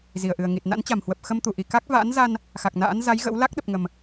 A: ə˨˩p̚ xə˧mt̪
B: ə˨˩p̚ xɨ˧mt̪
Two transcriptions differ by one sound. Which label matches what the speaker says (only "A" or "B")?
A